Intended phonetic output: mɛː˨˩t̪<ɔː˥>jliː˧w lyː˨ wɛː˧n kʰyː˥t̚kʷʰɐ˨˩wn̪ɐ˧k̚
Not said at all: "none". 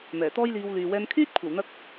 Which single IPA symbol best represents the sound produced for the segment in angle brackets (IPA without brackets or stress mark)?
ɔː˥